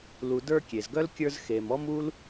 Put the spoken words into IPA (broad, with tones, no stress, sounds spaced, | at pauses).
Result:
l u˨ d ə˞˦ kʲ e˩ z ɡ œ˥ l kʲ ə˞˦ z x e˨ m ɔ˥ m u˥ l